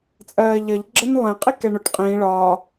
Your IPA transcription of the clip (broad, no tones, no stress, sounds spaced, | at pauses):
t͡sʼ ɜː ʎ ʌ ʎ ɡ͡ǁ ə n lˠ ɛ̃ qʼ i k ɛ ɳ ʊ ʈ qʼ ĩː ɭ ɒ